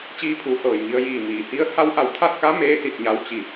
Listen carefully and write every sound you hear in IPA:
t͡ɕ iː˧˥ pʰ uː˩˧ h ɤː˧˩ j ŋ i˧ ə̯ j iː˧˩ m iː˩ h i˧ ə̯ h a˧˥ w ʔ a˧˩ w t̪ʰ a˥˨ t̚ k a˧˥ m eː˧˥ s i˧˩ t̚ ɲ a˧ w t͡ɕ i˧˩

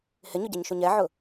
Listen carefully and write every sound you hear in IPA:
h ɪ ɲ ʊ ɟ ɛ ɲ ʃ u ɲ ɛ ʕ ʊ

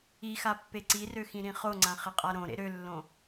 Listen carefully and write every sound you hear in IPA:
i x a pː e ǀ i r ø x ĩ ɾ ĩ χ o ŋ͡ǀ ã χ ɪ qʼ a ɾ õ ɾ ḛ ɾ ø lː õ

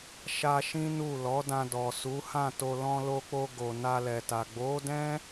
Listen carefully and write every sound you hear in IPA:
ʃ a˧ ʃ ĩ˦ n u˦˨ l ɔ˨˦ d ã˧ d ɔ˨ s u˨˦ h ã˦˨ t o˧ l ɔ̃˧ l o˧ k͡p o˧ ɡ o˨ n a˧ l ɛ˨ t a˨ ɡ͡b o˨˦ d ɛ̃˦

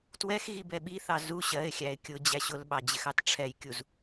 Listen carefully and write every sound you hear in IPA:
t w ɛ x ɣ i b ɛ ɓ i θ ɑ z u ɕ ɜ ɪ̯ xʲ æ ɪ̯ kʲ ʊ d͡ʑ æ ɕ ʊ l ɓ ɑ d͡ʑ ɪ x ɑ t ʈ͡ʂʰ ɛ j kʲ u z

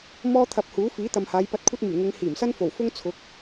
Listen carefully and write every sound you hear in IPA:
m ɔː˥ t̪ʰ ɐ˧ p̚ h uː˨˥ f iː˨˥ t̪ ɐ˨ m h aː˨˧ j p ɐ˧ t̚ kʷʰ ɐ˥ t̚ m yː˨˩ ŋ ɪ˨˧ ŋ h iː˨˩ m s ɐ˥ n f o˨˩ w f ʊ˥ ŋ t͡sʰ ʊ˨˥ k̚

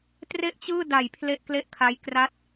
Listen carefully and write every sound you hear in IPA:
t r e˥˩ ʔ t͡ɕ ɯː˥˩ d a˨˩ j pʰ l e˥˩ ʔ k l e˥˩ ʔ kʰ a˦˥ j k r a˥˩ t̚

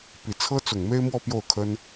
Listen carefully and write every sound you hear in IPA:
p i˨˩ t͡sʰ ɤ˥ t͡s ʊ˨˩ ŋ m e˥ ɪ̯ m w ɔ˥˧ p j o˥˩ ʊ̯ kʰ ə˥ n

